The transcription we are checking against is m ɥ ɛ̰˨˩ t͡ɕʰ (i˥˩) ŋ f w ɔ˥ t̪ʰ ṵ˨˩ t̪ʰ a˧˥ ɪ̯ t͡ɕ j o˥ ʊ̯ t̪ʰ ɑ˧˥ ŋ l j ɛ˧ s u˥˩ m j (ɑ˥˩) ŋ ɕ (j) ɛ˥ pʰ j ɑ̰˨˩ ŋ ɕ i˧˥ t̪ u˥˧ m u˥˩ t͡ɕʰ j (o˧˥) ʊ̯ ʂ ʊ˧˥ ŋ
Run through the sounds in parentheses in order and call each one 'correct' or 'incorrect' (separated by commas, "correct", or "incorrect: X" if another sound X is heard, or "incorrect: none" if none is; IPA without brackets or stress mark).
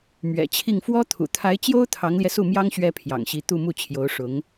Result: correct, incorrect: ɑ˥, incorrect: ɥ, correct